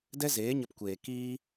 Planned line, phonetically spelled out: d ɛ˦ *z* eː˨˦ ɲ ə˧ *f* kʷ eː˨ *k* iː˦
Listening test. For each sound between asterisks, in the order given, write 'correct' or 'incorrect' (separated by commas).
correct, incorrect, correct